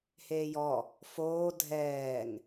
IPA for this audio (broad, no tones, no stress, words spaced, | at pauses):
heːjɔ | foː dʱɛːŋ